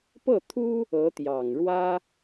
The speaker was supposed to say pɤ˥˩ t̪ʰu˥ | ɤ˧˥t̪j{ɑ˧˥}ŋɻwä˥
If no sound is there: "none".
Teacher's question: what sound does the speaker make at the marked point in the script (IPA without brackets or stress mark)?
ɑ˨˩